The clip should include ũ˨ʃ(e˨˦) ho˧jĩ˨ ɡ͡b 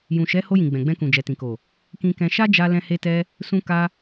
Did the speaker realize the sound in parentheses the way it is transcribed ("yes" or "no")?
no